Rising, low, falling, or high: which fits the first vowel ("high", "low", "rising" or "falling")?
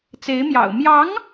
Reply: rising